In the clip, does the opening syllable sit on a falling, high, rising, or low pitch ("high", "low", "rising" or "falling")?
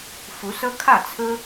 rising